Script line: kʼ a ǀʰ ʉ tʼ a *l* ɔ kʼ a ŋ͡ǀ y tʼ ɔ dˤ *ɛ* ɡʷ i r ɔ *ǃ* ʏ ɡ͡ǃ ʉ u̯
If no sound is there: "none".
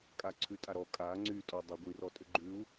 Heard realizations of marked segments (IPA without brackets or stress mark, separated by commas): ɾ, œ, tʼ